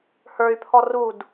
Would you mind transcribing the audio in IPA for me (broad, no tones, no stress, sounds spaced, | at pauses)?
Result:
h ə˞ y̯ pʰ ɔ r u d